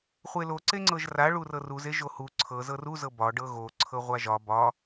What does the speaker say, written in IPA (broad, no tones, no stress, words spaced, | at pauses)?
χʷelo ǀeŋ͡ǀɤʒra ɭurɤruz eʒohu ǀʰɤ zɤru zɤbɒ ɖɤɣo ǀʰɤʁʷaʒɒ bɒ